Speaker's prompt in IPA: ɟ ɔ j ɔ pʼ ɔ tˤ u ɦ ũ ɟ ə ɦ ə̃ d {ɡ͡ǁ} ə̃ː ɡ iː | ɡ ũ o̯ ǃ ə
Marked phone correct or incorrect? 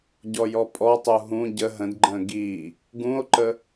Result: incorrect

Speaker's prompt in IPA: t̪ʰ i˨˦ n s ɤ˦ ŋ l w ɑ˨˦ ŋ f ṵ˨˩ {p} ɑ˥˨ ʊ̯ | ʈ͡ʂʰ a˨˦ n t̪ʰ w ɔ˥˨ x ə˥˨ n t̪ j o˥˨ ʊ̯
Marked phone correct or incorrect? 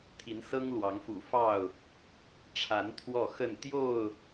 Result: incorrect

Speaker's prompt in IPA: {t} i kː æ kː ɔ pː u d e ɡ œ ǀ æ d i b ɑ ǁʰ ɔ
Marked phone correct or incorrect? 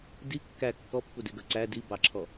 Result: incorrect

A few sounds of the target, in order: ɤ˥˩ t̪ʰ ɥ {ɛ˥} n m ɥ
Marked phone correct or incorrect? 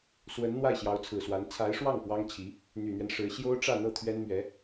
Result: correct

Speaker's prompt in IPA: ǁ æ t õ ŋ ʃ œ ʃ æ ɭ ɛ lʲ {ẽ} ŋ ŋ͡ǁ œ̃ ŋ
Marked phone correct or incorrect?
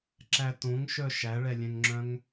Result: incorrect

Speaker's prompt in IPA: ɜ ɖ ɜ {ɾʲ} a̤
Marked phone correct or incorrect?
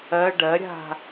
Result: correct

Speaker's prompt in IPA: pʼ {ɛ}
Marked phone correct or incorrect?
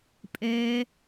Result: correct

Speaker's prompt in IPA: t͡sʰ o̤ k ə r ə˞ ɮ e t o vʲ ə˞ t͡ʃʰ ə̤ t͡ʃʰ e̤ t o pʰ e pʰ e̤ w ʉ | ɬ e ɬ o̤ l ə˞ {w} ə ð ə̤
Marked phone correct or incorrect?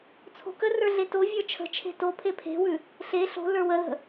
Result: correct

